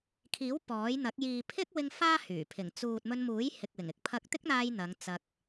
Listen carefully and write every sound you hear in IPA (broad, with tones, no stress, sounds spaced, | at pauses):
kʰ iː˨˥ w p ɔː˨˥ j n̪ ɐ˨˥ k̚ j iː˨ pʰ ɪ˥ k̚ w ɪ˧ ŋ f aː˥ h yː˨˩ pʰ ɪ˨˩ ŋ t͡s uː˨ t̚ m ɵ˧ n m uː˨˥ j h ɪ˨ k̚ w ɪ˨˩ ŋ ɪ˨ k̚ pʰ ɐ˧ k̚ t̪ ɪ˥ k̚ n̪ aː˧ j n̪ ɐ˨˧ ŋ t͡s ɐ˧ k̚